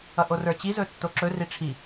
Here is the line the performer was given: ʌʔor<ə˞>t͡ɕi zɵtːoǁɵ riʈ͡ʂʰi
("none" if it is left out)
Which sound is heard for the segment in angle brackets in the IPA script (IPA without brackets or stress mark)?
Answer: ə˞